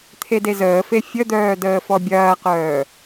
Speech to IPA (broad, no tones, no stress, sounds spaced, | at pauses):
t̪ʰ e d e z əː f e fʲ ə d̪ œː d əː f ɔ bʲ ɐː q œː